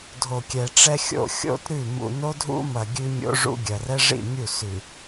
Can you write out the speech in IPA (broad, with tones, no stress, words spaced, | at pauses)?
dʱo˨kʲɛ˨ʈ͡ʂɛ˦xʲo̰˦˨ xʲo̰˦t ɾʉ˦˨ mṵ˨no˦dʱṵ˦mɐ˨ ɡʲʉ˦mʲo̰˦ʐṵ˦ɡʲɐ˨r ɛ˦ʐḭ˦˨ mʲu˦˨sʉ˨